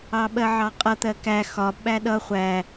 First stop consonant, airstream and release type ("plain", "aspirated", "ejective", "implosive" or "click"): implosive